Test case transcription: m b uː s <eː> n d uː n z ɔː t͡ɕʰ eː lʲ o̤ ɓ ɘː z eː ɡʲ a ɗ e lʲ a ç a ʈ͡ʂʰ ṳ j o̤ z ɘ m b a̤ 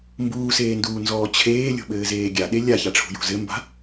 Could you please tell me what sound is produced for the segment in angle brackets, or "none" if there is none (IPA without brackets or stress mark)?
eː